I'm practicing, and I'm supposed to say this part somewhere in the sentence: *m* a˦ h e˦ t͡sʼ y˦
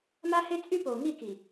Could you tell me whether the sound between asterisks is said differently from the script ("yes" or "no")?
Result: no